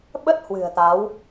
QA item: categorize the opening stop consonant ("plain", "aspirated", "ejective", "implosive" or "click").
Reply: implosive